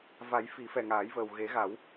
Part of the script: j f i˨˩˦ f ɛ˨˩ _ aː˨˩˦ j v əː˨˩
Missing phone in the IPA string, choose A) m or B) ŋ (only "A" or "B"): B